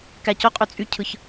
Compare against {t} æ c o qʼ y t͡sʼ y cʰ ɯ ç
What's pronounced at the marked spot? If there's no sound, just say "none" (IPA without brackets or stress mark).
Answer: k